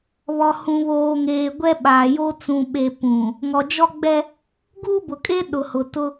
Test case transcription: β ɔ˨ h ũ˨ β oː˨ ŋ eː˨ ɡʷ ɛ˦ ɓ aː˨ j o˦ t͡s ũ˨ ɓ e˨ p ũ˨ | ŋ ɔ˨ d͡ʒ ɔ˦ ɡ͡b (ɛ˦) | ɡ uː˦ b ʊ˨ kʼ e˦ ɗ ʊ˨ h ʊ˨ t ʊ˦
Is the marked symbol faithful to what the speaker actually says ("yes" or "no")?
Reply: yes